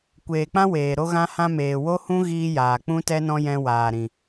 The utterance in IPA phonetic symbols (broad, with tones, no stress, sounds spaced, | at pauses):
kʷ eː˨ k͡p ã˦ w eː˨ ɾ o˧ ɣ ã˧ h ã˧ m eː˨ w o˦ h ũ˦ ɣ iː˦ j aː˨ k͡p ũ˧ t ɛ˧ n ɔ̃˧ j ɛ̃˧ w aː˨ ɾ ĩ˨